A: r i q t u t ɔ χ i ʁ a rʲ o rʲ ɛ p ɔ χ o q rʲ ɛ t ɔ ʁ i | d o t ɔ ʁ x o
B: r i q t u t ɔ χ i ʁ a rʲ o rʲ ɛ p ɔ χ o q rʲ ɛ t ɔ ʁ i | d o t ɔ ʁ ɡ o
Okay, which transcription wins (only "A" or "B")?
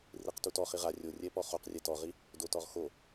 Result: A